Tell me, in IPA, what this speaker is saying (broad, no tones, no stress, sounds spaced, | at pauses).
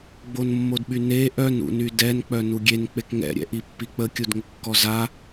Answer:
ɡ͡b o n mː o d ɓ y n e ʔ œ n ṵ n y d ɛ n k͡p œ n u ɡʲ e n k͡p e k ŋ ɛ̰ ɾʲ ɛ̰ ʔ i pː i k͡p ə kʲ u d ŋ ə kː ɔ z a